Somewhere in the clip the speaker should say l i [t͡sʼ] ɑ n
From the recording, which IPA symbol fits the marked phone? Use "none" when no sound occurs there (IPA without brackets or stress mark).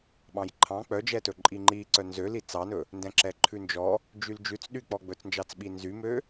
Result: t͡s